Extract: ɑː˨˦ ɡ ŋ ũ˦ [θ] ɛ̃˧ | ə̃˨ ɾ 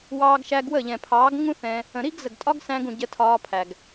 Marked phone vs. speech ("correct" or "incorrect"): correct